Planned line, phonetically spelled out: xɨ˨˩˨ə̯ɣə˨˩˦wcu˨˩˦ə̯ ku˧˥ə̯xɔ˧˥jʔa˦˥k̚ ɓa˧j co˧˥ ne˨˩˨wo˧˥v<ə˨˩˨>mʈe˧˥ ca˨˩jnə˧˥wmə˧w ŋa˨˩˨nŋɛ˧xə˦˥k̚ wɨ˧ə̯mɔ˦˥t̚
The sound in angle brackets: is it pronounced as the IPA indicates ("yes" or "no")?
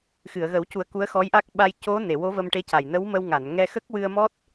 no